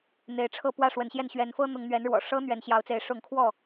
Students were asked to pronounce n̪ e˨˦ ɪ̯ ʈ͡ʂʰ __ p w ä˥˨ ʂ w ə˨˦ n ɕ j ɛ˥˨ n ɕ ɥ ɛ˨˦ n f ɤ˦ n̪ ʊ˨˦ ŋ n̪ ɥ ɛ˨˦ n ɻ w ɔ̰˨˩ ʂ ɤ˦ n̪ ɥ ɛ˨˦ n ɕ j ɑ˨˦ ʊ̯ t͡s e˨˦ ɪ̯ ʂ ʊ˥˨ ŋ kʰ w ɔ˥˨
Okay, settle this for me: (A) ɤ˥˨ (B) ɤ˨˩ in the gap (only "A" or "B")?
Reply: A